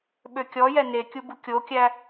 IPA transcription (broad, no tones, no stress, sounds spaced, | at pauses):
ɓ ø kʲ ɔ j ɛ n e kʲ u b u kʲ o kʲ æ